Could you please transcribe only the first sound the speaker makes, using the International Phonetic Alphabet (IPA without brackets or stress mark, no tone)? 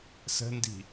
s